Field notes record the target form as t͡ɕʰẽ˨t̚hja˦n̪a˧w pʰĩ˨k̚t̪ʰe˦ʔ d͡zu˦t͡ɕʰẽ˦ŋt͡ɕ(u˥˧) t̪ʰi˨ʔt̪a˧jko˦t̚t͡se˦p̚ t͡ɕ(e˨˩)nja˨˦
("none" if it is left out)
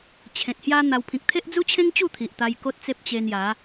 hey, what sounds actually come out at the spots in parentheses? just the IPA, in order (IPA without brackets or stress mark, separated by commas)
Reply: u˥˧, e˧